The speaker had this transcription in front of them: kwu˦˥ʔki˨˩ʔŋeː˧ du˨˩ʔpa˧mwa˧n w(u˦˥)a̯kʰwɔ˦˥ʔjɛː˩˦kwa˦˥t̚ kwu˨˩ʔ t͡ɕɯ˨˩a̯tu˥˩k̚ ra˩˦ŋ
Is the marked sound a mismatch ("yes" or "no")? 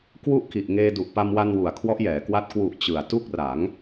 yes